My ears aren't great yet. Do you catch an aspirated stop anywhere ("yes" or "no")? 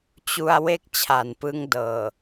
yes